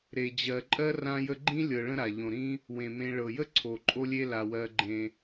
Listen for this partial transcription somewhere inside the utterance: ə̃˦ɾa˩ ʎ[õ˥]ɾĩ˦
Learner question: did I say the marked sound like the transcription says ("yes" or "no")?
no